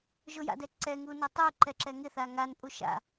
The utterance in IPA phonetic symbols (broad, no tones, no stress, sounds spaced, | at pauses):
ʒ ʊ j a̰ d ɛ ǀ ɛ ŋ u n ɛ tˤ u ǃ ɛ ǁ ɛ ŋ ɪ θ a ŋ a n pʼ u ʃ a̰